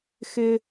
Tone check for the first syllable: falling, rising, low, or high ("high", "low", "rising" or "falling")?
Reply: high